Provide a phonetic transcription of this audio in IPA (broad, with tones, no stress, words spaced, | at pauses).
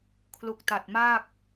kʰlu˨˩k̚ta˨˩t̚ maː˥˩k̚